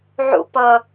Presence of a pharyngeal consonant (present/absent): present